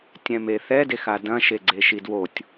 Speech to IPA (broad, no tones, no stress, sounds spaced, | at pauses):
tʲ ɛ̃ m e θ ɛ d e x a d ɐ̃ ʃ e ɡ͡ǀ e ʃ i d w o tʲ